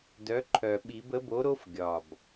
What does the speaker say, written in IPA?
d œ˩˥ ǃʰ œ˨˩ ɓ i˨˩˦ b ə˩˥ b o˩˥ ɾ o˦˥ f ɡʲ ɒ˨˩ b

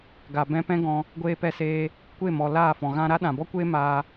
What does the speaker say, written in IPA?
ɡ a˨ b ɛ̃˧ p ɛ̃˦ ɡ ɔ̃˧ | ɡʷ eː˧ p ɛ˧ s eː˧ | kʷ e˦˨ m ɔ˨ l aː˦˨ f ɔ̃˨ ɣ ã˧ ɾ a˦ ɗ ã˨ b ɔ˦ kʷ eː˦ m aː˧

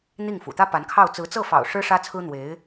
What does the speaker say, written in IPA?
n̪ i˥˩ ŋ f ṵ˨˩ t̪ ä˥ p a˧˥ n kʰ ɑ˥˩ ʊ̯ t͡s ɹ̩˧˥ t͡s ɤ˥˩ f ɑ̰˨˩ ʊ̯ ʂ ɻ̩˥ ʂ ä˥ t͡sʰ ɹ̩˥ n̪ w e˧˥ ɪ̯

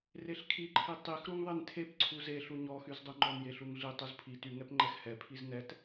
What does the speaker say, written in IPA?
r e ɬ kʰ i ǃʰ i tˤ i x ɾ u ŋ ðˤ e n tʰ e p ǀʰ u z e ɬ u ɲ ɔ x y z dˤ u ŋ͡ǃ ɔ n j e ɬ u ŋ ɮ i tˤ u z pʰ i t y ŋ ɛ p ŋ͡ǃ ɛ x h ɛ pʰ i z n ɛ t

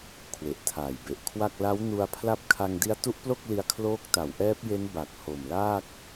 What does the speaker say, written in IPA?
kʰ w e˨˩ ʔ tʰ aː˨˩ j b e˨˩ ʔ kʰ w a˥˩ k̚ l a˦˥ w n u˧ a̯ pʰ l a˦˥ p̚ kʰ a˧ ŋ d i˦˥ a̯ t u˦˥ ʔ p l o˥˩ k̚ l i˧ a̯ kʰ l oː˦˥ k̚ t a˩˦ w ʔ ɛː˦˥ p̚ j e˦˥ n b a˨˩ k̚ h o˨˩ m l aː˥˩ k̚

